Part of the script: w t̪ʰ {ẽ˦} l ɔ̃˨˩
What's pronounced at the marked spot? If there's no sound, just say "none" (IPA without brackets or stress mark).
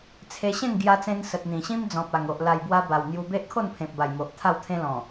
ẽ˦